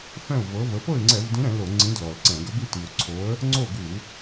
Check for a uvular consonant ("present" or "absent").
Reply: absent